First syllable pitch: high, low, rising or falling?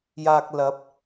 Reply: low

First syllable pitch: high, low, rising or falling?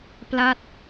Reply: falling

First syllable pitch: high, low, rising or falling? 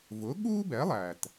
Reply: rising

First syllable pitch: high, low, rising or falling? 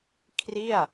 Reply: falling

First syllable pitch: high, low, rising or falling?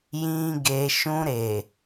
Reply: high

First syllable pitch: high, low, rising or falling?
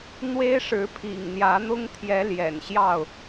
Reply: high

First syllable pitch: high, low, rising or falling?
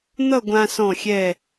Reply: falling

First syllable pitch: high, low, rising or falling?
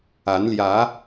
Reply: rising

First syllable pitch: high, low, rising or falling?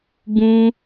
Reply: high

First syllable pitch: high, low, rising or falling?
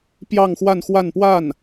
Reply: falling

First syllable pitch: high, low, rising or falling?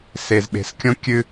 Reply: low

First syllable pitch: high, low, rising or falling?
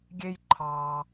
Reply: high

